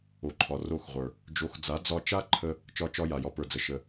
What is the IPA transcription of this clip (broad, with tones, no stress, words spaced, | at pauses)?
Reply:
o˨ǃʰɒ˨ro˦˨xʁʷə˞˨ | d͡ʒo˨˦xd͡za˨˦ d͡zɒ˧t͡ʃa˦ǃʰə˧ | t͡ʃɒ˦t͡ʃɒ˦ ja˨jɒ˦pə˞˧d͡zə˧ ʃə˧